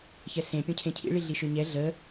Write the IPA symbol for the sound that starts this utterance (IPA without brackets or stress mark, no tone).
ç